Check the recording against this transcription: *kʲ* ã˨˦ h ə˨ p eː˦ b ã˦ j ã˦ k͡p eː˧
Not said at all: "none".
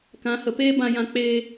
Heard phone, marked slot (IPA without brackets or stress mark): k